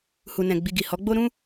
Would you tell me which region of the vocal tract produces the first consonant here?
throat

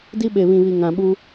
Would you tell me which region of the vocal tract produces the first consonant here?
tongue tip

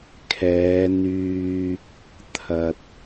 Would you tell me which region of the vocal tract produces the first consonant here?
velum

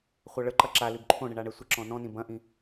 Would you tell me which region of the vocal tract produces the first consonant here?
uvula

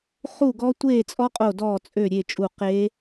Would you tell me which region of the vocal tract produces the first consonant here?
uvula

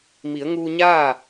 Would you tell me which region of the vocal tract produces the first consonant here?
lips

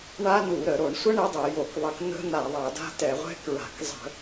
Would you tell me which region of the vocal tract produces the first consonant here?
retroflex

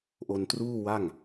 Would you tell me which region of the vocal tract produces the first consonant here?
throat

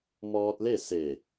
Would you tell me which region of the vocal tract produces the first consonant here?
lips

